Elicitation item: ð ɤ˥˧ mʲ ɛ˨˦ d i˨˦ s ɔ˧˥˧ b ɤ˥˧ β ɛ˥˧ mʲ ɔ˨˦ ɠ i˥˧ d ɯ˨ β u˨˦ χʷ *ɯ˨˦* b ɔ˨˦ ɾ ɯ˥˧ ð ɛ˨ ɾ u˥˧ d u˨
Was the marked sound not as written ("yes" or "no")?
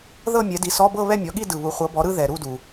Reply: yes